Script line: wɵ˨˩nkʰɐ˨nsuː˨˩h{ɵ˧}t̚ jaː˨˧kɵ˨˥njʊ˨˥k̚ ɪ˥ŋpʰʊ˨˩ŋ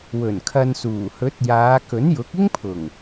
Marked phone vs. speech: incorrect: ɵ˨˥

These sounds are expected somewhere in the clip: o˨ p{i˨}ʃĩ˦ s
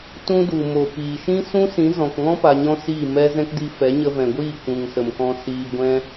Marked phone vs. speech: incorrect: iː˨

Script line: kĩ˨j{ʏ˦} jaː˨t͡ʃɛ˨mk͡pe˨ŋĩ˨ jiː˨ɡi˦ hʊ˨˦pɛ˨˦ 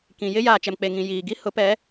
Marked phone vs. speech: incorrect: ɪ˦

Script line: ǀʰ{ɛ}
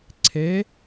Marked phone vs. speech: incorrect: e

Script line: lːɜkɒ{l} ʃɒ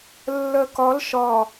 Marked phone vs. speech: correct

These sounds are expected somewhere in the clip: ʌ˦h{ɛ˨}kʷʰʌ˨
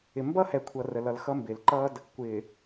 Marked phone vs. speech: correct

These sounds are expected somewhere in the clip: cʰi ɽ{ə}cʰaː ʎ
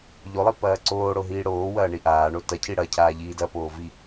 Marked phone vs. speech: incorrect: ɐ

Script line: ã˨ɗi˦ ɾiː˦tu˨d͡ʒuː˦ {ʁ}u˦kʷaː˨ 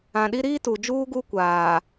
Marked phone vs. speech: incorrect: ɡ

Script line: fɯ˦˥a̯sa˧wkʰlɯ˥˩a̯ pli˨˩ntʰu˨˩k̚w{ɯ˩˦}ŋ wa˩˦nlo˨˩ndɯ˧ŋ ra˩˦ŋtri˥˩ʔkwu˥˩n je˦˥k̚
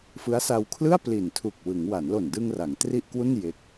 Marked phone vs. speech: correct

